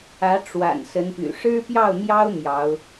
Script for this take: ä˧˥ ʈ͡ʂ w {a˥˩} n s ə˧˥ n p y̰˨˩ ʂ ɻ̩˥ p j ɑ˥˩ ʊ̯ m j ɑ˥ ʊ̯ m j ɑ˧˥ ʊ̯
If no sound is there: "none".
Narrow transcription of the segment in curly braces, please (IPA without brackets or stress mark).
a̰˨˩